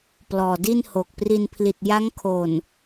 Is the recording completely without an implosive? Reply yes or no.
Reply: yes